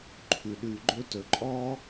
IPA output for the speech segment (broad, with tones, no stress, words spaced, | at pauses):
ǃʰʉ˩ɗʉ˨ɡ͡ǃɵ˦tɵ˨ ǃʼɔ˦